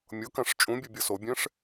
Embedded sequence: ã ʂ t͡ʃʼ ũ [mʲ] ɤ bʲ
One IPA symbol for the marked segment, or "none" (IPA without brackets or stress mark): bʲ